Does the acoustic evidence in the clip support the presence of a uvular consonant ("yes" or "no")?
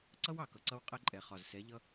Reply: yes